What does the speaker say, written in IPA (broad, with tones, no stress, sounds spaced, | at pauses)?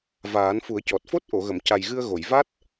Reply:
v aː˨˩˦ n f u˨˩˦ ə̯ c ɔ˨˩ t̚ f o˦˥ t̚ ʔ o˨˩˨ ɣ ə˨˩˨ m c a˨˩ j ɣ ɨ˧ ə̯ ɣ o˨˩˨ j v a˦˥ t̚